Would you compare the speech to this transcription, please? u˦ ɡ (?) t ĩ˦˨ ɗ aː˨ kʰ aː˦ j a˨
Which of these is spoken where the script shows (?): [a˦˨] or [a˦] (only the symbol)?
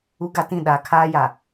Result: a˦